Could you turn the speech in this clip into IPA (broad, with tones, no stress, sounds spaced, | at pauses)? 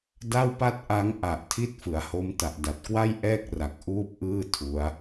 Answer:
d a˥˩ w p a˥˩ t̚ ʔ a˦˥ ŋ ʔ a˨˩ ʔ tʰ i˦˥ t̚ f ɯ˩˦ a̯ h o˦˥ m t a˨˩ ʔ d a˨˩ t̚ k w a˥˩ j ʔ ɛː˥˩ k̚ r a˨˩ k̚ ʔ uː˥˩ p̚ ʔ ɯː˥˩ tʰ u˦˥ a̯